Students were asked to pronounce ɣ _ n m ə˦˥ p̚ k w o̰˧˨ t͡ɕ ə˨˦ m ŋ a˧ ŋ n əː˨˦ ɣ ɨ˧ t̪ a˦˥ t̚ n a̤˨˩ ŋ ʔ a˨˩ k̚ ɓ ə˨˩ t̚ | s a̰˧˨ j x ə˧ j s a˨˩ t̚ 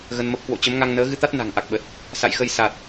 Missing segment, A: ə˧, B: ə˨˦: A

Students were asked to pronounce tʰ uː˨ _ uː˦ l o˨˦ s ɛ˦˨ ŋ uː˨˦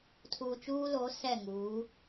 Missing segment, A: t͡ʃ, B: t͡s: A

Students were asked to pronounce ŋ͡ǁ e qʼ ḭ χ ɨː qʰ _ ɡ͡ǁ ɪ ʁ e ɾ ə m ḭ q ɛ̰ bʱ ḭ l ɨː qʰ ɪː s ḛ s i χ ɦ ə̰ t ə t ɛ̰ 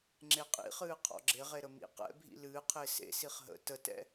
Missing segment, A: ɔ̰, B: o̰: A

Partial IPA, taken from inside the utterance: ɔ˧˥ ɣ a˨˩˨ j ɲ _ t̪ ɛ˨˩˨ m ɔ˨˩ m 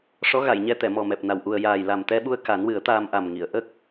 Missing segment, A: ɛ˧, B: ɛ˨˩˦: A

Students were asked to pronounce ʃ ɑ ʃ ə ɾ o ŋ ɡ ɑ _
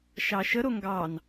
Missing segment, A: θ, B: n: B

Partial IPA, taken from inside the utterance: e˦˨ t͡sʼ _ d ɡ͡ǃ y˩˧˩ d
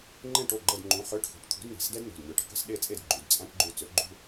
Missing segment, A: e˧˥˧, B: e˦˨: B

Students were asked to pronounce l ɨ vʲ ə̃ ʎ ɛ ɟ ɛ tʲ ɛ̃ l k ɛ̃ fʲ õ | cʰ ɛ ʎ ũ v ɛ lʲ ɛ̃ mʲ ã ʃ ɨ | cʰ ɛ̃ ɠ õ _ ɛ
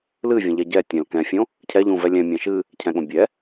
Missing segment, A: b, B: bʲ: B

